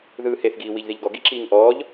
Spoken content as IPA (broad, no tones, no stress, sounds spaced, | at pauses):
ð ɯː h e θ ɡ iː w i ʎ ð i ʎ ɡ ɔ ɡ i ǁ iː ŋ ʔ ɔː ʎ